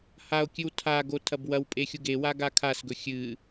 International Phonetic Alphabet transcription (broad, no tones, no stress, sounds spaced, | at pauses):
h a o̯ kʲ ɨ w tʰ a ɡ o tʰ ɐ b w ɐ w pʼ e xʲ u ɡ e w a ɡ a kʰ a s ɡ ɵ xʲ ɨ